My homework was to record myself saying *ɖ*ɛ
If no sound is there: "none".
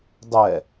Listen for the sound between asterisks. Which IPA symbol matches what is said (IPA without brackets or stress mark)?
dˤ